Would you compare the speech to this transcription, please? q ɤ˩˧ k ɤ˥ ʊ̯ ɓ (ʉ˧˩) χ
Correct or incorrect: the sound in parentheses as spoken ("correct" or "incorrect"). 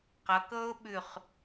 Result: correct